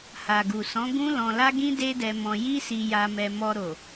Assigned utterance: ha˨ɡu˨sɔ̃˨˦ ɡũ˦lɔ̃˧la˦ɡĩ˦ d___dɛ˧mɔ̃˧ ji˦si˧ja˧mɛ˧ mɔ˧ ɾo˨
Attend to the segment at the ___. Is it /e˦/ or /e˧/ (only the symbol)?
e˦